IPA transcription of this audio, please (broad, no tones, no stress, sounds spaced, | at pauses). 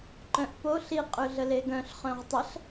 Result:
ǃ œ̃ ʔ p o ɬ i qʼ ø ɮ ə l e ɡ œ̃ ɬ χ œ̃ ʁ tˤ ə ɬ